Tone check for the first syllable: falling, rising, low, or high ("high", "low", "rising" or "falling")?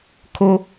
high